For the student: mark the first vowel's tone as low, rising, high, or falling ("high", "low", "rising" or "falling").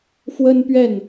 high